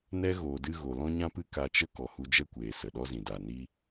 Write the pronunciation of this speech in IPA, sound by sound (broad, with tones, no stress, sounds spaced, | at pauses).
n ɛ˦ ɣ oː˨ d ɨ˧ ɣ o˨ l ɔ̃˦ ɲ ã˦ p ɨ˦ k a˧ t͡ʃ ə˦ k ɔ˨ h u˧ d͡ʒ ɛ˦ kʷ eː˨ s ə˨ ɗ ɔ˦ z ĩ˨ d a˨ n iː˧